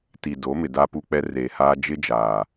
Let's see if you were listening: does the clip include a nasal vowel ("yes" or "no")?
no